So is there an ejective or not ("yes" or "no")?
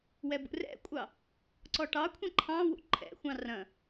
yes